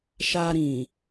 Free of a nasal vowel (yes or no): no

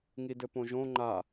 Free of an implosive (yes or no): yes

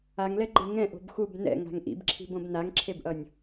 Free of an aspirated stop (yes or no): no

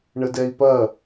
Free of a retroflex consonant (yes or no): no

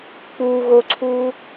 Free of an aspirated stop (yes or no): no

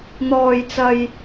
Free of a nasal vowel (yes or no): yes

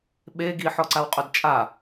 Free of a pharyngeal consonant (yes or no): no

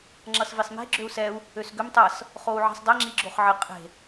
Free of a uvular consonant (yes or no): no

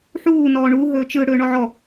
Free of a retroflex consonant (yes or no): no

